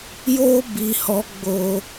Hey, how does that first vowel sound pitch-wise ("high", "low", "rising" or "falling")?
high